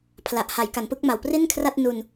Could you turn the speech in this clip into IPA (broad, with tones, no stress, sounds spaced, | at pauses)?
pʰ l a˨˩ ʔ h a˩˦ j k a˩˦ n p ɯ˦˥ k̚ m a˨˩ w p r i˥˩ n kʰ r a˥˩ t̚ n u˧ n